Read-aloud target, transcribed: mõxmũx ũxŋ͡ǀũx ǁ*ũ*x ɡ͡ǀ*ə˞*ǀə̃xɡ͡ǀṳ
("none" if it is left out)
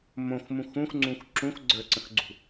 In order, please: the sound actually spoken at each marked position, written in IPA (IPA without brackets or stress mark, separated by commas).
ũ, ə˞